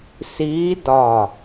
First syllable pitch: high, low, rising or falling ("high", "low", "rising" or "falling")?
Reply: rising